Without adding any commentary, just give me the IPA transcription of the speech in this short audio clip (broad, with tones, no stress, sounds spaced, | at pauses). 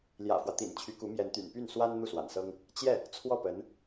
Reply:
l j ä̰˨˩ f w ä˦ t̪ ḭ˨˩ n t͡ɕʰ y˧˥ k u˧˥ m j ɛ˧˥ n t̪ y̰˨˩ n p y˥˩ n s w a˥ n n̪ u˥˩ s w a̰˨˩ n s ɤ˥ ŋ | t͡ɕ j ɛ˥˩ | t͡sʰ w ɔ˥˩ p ə˧˥ n